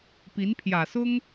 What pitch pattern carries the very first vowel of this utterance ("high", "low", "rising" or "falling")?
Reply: rising